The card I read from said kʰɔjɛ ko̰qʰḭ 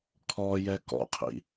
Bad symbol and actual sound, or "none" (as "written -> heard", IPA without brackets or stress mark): o̰ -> ɔ̰